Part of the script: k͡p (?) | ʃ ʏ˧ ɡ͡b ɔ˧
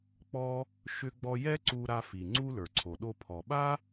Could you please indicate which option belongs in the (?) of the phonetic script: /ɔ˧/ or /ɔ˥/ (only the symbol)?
ɔ˧